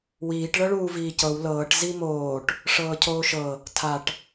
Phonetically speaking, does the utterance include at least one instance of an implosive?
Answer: no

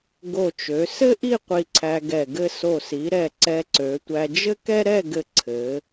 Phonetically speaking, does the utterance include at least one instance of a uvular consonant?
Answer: yes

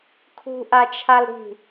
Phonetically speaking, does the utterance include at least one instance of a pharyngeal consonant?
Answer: no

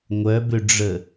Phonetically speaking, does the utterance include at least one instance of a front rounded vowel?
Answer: yes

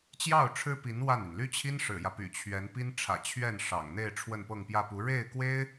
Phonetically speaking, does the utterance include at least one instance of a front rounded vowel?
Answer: yes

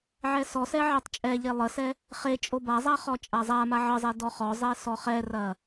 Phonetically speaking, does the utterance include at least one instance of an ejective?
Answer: yes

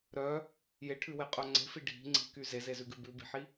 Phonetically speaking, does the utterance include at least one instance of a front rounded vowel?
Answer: yes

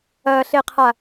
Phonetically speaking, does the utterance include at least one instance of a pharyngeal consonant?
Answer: no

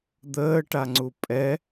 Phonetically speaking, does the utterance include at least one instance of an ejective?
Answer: yes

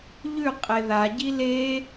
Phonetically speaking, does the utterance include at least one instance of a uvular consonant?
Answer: yes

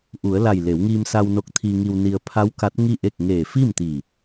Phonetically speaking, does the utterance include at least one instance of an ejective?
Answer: no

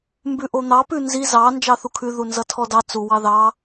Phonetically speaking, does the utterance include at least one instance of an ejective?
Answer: no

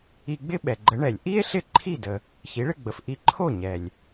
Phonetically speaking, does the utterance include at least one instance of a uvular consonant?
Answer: no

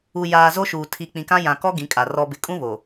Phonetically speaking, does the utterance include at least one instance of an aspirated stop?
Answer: yes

